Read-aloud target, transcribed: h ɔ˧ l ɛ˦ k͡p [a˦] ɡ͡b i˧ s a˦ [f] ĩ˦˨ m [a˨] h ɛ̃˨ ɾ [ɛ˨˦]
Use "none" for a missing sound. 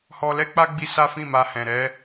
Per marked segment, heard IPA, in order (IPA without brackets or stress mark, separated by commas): a˦, f, a˧, ɛ˨˦